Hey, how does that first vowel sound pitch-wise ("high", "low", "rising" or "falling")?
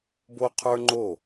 high